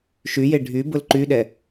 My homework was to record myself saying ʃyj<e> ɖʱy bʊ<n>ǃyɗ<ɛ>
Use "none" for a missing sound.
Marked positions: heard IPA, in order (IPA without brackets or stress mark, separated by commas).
e, l, ɛ